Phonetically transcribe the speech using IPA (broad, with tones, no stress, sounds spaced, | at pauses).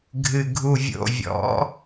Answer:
ɡʱ ɨ˨ ɡʱ u˨ vʲ o̰˨ vʲ ɔ̰˨˦